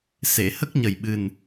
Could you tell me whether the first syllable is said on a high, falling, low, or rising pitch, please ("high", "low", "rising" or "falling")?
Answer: low